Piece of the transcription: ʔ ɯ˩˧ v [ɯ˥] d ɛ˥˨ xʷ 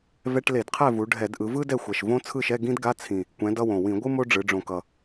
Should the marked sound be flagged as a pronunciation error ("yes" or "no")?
no